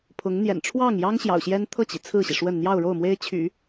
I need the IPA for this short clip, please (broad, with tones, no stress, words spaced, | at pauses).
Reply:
pʰʊ˧˥ŋn̪jɛ̰˨˩n ʈ͡ʂʰwɑ˥˩ŋjɑ˥ŋ ɕjɑ̰˨˩ʊ̯ɕjɛ˥n t̪ʰɤ˥˩t͡ɕi˩ t͡sʰɹ̩˥˩ɕi˩ʂwə˥˧n n̪jɑ˥˧ʊ̯ɻo˥˩ʊ̯ mwe˥ɪ̯t͡ɕʰy̰˨˩˦